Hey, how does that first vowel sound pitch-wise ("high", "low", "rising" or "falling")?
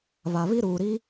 low